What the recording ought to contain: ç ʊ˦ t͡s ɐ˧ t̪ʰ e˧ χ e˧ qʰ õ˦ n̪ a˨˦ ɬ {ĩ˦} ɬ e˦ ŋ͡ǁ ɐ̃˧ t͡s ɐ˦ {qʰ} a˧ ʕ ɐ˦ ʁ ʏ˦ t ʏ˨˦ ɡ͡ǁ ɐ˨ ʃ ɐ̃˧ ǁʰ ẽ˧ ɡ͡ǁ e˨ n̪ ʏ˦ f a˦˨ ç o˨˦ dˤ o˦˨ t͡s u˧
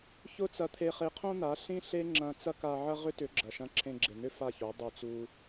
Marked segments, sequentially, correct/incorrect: correct, incorrect

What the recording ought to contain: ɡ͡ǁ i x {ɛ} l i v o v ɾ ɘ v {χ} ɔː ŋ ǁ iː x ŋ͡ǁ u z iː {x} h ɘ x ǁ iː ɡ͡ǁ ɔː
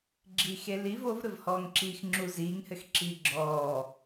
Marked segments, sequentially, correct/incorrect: incorrect, incorrect, incorrect

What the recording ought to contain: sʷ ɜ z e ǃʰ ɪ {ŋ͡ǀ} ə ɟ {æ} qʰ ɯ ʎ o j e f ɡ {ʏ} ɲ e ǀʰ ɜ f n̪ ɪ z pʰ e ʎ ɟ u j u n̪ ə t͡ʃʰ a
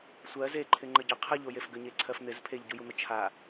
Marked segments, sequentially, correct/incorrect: incorrect, incorrect, correct

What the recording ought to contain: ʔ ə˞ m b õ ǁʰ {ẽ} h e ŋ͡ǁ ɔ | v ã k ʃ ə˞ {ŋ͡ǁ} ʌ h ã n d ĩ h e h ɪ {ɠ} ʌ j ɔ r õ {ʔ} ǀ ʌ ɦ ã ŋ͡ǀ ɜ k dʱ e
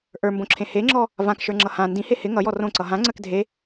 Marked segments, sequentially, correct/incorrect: correct, correct, incorrect, incorrect

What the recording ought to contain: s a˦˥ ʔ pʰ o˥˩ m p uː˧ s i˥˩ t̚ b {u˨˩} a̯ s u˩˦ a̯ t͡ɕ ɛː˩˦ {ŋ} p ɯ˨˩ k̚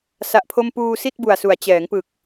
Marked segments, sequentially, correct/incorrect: correct, correct

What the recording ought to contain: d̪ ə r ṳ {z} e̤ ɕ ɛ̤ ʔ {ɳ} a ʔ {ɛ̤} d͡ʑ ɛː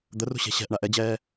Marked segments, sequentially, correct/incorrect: incorrect, correct, incorrect

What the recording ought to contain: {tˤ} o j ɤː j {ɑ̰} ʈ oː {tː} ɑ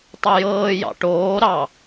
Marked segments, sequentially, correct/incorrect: correct, correct, incorrect

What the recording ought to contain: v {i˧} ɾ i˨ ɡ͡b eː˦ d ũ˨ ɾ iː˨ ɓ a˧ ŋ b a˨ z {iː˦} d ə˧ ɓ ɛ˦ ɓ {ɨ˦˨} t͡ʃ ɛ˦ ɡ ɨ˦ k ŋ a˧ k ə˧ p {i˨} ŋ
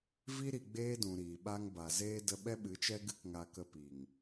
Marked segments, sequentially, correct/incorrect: correct, incorrect, incorrect, correct

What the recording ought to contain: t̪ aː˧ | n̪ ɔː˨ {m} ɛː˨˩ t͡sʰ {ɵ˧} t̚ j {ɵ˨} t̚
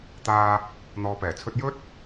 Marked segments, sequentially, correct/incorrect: incorrect, correct, incorrect

